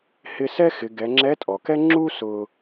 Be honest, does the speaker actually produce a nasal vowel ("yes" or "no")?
no